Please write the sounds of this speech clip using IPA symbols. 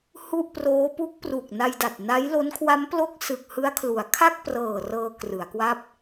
h u˥˩ ʔ p r oː˦˥ p u˦˥ k̚ p r u˨˩ k̚ n a˧ j d a˨˩ t̚ n a˦˥ j l o˦˥ n kʰ w a˦˥ m p l o˦˥ k̚ s ɯ˨˩ k̚ h ɯ˦˥ a̯ kʰ l u˩˦ a̯ kʰ a˥˩ k̚ p r ɤː˨˩ r ɤː˧ k r ɯ˩˦ a̯ k w a˥˩ p̚

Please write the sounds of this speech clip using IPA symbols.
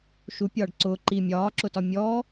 ʃ u pʲ ɒː ɖ ǀ ʊː ǃ i mʲ ɒː ǁ ʊ t ɒ mʲ ɔ

